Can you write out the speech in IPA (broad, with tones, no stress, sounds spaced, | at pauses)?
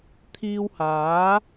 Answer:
t̪ʰ iː˧ w h aː˨˥